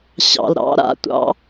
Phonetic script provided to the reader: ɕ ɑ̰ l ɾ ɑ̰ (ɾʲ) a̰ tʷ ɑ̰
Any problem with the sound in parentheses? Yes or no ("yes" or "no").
yes